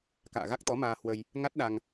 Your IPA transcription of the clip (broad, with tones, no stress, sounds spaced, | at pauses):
k a̰ː˧˨ ɣ a˦˥ k̚ t̪ ɔ˨˦ m aː˧ h w ə˧ j | ŋ a˦˥ t̚ ɗ a˧ ŋ